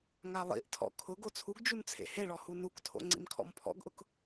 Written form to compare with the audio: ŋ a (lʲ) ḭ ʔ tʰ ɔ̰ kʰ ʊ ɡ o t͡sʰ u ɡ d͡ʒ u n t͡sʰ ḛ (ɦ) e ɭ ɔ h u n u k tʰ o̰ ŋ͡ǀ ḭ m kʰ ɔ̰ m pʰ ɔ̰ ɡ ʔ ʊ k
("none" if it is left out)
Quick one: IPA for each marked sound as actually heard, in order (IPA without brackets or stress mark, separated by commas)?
lˠ, h